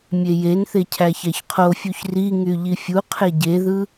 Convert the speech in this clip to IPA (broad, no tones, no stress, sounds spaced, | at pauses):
mʲ e j e n θ e cʰ æ ç æ ç qʰ o fʲ u ç r i ŋ y ʎ i fʲ u qʰ e ɟ e ð ɯ